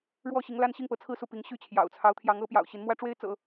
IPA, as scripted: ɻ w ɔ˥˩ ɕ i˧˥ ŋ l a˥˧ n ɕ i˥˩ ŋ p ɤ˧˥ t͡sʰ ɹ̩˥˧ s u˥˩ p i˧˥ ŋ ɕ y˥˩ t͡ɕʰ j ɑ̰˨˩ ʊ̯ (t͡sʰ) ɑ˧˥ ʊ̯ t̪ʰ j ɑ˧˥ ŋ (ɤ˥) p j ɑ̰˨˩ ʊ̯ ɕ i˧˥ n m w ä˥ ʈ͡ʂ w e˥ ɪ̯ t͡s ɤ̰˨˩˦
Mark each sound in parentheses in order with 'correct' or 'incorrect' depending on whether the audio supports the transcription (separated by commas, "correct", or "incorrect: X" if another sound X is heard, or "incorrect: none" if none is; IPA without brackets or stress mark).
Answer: correct, incorrect: ɤ˧˥